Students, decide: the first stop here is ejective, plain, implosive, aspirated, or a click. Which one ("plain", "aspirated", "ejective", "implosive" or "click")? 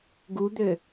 plain